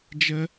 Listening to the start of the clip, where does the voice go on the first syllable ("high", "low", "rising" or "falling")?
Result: high